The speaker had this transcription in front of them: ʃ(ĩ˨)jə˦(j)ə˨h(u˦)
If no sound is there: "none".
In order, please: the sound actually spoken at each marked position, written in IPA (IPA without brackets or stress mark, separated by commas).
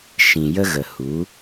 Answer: ĩ˨, ɣ, u˨˦